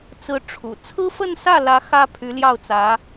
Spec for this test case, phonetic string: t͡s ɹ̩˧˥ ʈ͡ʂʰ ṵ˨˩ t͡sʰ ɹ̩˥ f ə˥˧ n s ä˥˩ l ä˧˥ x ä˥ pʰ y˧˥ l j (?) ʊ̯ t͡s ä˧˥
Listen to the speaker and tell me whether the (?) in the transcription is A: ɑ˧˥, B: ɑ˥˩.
B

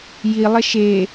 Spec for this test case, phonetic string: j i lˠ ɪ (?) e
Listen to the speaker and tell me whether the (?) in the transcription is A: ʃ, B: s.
A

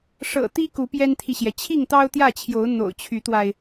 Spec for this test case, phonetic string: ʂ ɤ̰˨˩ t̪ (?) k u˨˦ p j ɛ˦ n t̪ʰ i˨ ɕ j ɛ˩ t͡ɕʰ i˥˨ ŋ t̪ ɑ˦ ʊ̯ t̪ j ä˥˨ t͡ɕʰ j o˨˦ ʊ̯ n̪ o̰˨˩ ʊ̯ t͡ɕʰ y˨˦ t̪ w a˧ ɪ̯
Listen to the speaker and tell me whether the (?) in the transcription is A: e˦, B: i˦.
B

